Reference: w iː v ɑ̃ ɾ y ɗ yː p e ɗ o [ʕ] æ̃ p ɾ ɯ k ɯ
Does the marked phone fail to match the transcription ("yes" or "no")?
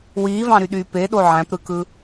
no